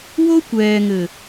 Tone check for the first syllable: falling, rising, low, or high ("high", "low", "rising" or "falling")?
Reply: high